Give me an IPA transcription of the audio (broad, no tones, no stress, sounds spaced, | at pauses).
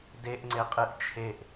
d e ʔ ŋ͡ǀ e qʼ ɨ ʔ t͡ʃʰ e ʔ